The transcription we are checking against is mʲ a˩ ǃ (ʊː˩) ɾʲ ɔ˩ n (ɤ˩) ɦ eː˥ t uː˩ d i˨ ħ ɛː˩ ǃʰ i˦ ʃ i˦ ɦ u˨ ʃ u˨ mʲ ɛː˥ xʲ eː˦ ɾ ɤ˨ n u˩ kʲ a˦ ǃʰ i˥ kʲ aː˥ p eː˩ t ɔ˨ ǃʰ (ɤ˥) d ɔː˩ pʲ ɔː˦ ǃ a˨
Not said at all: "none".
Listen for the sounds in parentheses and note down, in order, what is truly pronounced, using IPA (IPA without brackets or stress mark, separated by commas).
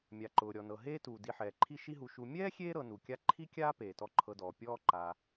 ʊː˩, ɤ˩, ɤ˨